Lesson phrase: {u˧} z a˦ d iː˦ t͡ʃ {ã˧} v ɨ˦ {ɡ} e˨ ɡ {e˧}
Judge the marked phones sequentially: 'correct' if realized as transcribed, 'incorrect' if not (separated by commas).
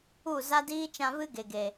incorrect, correct, correct, incorrect